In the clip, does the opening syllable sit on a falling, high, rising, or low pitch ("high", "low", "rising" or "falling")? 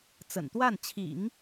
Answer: low